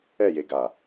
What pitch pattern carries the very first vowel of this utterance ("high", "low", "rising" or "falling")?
falling